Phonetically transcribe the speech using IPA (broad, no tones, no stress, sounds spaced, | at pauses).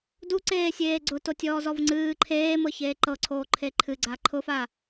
d u ǀ eː sʲ eː ɡ͡ǀ ʊ t o tʲ ɔː z ɔ v ŋ͡ǀ ɨː ǃʰ eː m ɤ ç eː ǃ ɤ ǀʰ oː ǃʰ e ǃʰ ɨ ɡ͡ǀ a ǃʰ ʊ f a